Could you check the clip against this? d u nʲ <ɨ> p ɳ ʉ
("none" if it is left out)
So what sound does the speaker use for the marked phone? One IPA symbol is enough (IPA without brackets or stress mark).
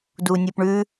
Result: ɨ